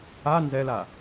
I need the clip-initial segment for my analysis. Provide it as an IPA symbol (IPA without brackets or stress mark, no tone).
a